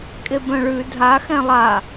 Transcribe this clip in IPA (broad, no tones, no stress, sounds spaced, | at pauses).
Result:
kʼ e b œ̃ ɭ ʉ dʱ a x ɛ̃ lˠ a